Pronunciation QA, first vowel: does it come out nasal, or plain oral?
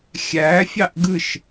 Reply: oral